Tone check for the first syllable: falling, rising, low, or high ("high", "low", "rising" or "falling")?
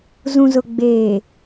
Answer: low